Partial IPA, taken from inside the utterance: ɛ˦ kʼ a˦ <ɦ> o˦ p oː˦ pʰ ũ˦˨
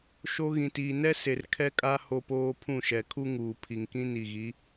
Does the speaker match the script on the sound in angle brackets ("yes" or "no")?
no